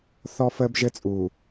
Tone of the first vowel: high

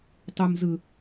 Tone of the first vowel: low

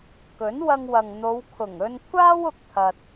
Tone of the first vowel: rising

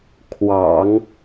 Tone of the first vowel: low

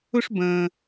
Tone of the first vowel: high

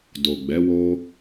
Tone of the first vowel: low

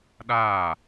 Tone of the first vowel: falling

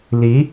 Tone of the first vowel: rising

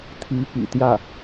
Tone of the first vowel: rising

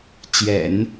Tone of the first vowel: low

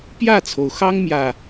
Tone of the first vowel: falling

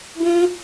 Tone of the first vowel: high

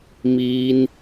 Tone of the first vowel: high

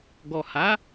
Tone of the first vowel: low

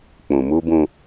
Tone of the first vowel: low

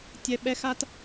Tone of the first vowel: high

